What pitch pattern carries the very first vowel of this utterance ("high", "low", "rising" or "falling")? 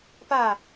falling